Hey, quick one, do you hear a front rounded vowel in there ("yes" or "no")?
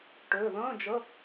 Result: yes